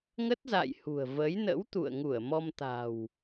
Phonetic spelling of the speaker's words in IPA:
ŋ ə˦˥ t̚ z a̰˧˨ j h ṳ˨˩ ə̯ v əː˨˦ j n ə̰˧˥ w t̪ ṵ˧˨ ə̯ ŋ u˧˩ ə̯ m ɔ˧ m t̪ a̤˨˩ w

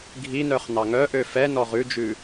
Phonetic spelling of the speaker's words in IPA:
ɡʱ i n œ χ n ɑ ŋ œ ʔ ø f ɛ n ɔ ʁ ʉ d͡ʒ ʉ

